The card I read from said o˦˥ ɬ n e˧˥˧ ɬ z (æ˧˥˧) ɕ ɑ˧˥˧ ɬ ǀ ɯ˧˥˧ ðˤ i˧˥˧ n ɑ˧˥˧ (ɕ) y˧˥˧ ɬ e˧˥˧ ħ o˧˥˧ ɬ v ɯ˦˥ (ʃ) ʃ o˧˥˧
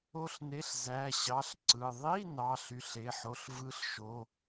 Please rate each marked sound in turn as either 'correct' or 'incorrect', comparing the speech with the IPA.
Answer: correct, incorrect, incorrect

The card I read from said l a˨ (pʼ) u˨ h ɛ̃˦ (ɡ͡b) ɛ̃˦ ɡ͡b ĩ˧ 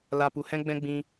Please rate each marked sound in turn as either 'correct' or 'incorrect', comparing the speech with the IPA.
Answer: incorrect, correct

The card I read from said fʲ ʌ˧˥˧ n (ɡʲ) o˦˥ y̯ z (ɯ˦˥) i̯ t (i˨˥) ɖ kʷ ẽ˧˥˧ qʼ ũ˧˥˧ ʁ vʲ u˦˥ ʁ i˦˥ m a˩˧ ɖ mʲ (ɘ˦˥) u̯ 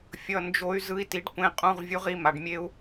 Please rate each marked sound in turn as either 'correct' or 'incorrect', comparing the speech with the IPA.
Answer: incorrect, correct, correct, incorrect

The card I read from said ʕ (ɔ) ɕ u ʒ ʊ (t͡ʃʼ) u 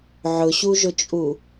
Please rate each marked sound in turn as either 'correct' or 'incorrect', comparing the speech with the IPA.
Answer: incorrect, correct

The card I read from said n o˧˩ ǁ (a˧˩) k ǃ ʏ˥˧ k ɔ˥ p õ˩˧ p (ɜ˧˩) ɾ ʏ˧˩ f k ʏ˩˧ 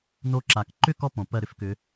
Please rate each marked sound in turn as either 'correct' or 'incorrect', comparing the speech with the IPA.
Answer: incorrect, correct

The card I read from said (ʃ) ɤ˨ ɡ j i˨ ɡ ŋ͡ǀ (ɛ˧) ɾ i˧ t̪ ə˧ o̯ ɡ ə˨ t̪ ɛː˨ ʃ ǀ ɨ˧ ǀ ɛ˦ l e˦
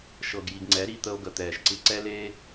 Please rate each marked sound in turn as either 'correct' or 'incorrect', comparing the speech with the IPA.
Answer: correct, incorrect

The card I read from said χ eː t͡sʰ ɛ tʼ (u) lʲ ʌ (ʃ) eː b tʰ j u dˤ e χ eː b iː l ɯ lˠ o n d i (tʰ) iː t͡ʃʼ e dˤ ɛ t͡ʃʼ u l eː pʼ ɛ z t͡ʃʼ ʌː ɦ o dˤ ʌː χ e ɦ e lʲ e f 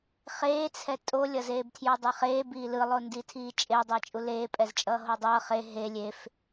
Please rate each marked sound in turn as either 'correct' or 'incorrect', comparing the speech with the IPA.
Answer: incorrect, incorrect, correct

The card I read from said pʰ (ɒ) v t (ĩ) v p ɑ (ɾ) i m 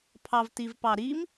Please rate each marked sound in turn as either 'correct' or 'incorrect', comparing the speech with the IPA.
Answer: incorrect, incorrect, correct

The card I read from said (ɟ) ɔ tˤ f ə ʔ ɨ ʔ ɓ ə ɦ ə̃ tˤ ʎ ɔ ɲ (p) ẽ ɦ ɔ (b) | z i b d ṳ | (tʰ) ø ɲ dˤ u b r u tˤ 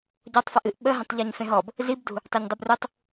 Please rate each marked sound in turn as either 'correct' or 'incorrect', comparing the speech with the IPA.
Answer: correct, incorrect, correct, incorrect

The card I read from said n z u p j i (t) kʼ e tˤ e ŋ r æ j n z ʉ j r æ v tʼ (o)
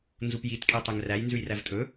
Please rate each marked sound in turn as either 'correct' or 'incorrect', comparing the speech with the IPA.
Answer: correct, incorrect

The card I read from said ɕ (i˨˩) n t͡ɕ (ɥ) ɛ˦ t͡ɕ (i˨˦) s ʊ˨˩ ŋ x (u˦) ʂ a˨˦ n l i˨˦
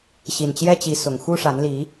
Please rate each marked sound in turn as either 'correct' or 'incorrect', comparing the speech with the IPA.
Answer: correct, incorrect, correct, correct

